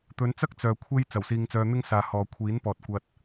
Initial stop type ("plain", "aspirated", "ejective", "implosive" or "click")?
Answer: plain